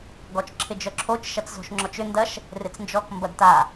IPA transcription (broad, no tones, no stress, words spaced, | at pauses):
ɡɔt͡ʃǁʰɪd͡ʒœǁʰot͡ʃ ʃɐt͡szo̤ʃŋ͡ǁɔt͡ʃʏ ndɐʃ | rɪt͡snd͡ʒɔk mbɐdta